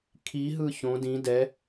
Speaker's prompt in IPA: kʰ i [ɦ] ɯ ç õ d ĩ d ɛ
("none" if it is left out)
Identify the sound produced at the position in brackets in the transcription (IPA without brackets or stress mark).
ɦ